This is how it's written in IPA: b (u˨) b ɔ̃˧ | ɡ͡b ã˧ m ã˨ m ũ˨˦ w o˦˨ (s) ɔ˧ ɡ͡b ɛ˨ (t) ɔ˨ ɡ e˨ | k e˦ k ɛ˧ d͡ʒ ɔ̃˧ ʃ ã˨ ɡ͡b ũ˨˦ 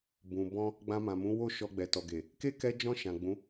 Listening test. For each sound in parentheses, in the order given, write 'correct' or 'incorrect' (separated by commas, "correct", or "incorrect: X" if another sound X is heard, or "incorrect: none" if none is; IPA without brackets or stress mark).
incorrect: ũ˨, incorrect: ʃ, correct